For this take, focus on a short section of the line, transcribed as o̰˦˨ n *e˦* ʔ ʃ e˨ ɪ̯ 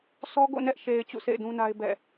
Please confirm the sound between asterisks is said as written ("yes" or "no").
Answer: no